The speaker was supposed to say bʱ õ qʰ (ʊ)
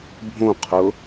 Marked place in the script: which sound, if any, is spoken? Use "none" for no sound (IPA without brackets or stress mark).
ʊ